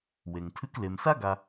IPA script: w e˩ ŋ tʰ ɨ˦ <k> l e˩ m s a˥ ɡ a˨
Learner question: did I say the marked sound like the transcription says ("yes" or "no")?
yes